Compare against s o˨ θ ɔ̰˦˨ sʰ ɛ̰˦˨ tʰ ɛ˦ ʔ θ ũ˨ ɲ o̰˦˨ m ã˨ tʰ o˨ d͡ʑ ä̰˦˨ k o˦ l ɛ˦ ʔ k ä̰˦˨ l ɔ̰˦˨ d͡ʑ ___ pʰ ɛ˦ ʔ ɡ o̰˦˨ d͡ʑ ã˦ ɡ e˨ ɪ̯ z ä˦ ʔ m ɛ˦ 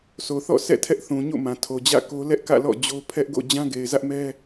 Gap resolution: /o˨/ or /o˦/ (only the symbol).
o˦